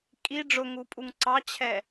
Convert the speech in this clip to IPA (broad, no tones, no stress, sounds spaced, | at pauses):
kʼ i ɖ͡ʐ ʊ ŋ u pʼ u ŋ ǀ ɑ t͡ɕʰ ɛ